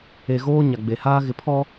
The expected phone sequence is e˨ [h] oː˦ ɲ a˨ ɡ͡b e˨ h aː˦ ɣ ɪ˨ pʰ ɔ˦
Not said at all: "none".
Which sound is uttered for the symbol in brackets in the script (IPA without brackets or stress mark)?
ɣ